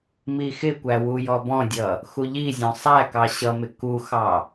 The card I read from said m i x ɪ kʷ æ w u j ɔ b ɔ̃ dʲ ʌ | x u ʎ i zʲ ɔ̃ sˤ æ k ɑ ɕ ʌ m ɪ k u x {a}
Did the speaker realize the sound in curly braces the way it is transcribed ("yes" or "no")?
no